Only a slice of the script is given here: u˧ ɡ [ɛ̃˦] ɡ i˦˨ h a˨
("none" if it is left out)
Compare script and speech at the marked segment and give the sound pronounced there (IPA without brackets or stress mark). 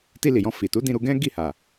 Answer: ɛ̃˦